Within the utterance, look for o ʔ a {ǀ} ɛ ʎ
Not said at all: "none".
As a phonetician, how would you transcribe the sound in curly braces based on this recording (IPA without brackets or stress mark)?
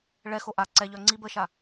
ǀ